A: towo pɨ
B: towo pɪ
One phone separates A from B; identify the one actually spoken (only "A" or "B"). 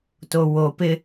B